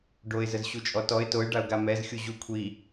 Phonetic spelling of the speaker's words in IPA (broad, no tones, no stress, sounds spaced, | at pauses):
ɖ o ɪ̯ z ə z ɕ u t͡ʃʼ ɔ t ɔ ɪ̯ t o ɪ̯ ɖ a ʊ̯ ɡ a m ɛ z xʲ u ʑ u kʷʰ i